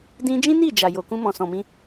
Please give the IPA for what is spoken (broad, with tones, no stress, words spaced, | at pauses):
dĩ˧d͡ʒĩ˦ni˦˨ d͡ʒa˨jo˨ kũ˧mɔ̃˨sɔ̃˨mĩ˧